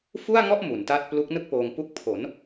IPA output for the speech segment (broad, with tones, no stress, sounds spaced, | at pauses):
f u˥˩ a̯ ŋ ɔ˥˩ ʔ m u˩˦ n t a˥˩ t̚ p l u˦˥ k̚ n ɯ˥˩ k̚ p oː˧ ŋ p u˦˥ k̚ pʰ o˩˦ n